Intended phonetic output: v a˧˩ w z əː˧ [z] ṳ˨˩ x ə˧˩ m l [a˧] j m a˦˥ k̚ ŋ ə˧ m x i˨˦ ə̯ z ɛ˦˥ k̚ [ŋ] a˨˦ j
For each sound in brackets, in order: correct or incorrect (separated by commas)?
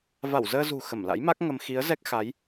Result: correct, incorrect, incorrect